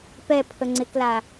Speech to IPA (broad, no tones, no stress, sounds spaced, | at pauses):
p ɛ pʰ ə ŋ͡ǀ ɪ k l a